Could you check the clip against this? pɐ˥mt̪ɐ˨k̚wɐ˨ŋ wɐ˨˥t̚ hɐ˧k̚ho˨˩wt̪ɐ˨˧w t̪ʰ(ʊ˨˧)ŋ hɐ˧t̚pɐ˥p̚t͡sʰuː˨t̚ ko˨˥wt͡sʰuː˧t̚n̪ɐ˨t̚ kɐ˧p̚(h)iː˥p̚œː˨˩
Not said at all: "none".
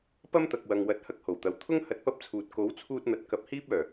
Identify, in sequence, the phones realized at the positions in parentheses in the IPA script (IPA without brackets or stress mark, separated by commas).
ʊ˥, h